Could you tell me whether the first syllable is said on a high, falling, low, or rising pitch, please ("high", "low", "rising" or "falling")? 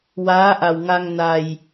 rising